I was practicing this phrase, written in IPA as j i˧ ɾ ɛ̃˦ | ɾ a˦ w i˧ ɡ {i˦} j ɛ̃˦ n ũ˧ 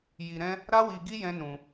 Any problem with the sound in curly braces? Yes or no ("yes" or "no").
no